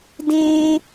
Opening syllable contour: high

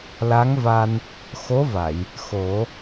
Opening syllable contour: rising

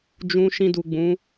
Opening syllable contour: low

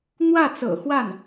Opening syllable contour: falling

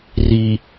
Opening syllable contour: low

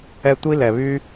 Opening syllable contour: high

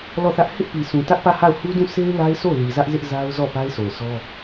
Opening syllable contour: falling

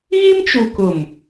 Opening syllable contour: high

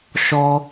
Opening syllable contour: high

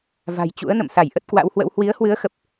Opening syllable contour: low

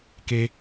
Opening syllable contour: high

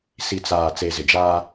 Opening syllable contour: low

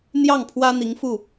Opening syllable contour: falling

